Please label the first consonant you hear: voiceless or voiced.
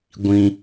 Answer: voiced